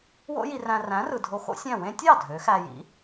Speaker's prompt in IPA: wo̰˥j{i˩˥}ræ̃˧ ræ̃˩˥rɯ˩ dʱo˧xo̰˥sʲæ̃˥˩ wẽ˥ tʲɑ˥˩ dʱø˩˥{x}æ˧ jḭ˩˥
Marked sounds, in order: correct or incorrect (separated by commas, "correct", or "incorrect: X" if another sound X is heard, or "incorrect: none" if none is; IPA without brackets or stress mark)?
incorrect: i˧, correct